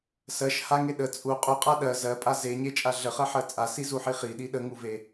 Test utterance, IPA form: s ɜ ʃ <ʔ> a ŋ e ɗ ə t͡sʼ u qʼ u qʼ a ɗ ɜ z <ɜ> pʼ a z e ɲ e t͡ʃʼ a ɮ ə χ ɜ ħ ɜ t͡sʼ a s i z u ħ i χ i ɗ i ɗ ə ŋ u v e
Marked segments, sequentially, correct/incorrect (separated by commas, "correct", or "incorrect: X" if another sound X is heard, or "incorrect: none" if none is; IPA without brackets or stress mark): incorrect: h, correct